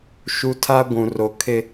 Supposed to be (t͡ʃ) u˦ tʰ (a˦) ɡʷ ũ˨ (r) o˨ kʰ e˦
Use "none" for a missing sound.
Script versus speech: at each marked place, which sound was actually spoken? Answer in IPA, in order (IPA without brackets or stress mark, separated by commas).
ʃ, a˦, r